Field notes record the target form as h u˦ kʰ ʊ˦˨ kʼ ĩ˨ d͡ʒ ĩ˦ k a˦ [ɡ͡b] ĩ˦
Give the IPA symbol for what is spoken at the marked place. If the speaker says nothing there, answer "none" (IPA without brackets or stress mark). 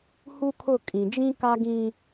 ɡ